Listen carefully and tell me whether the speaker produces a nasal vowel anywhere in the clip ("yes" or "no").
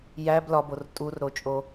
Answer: no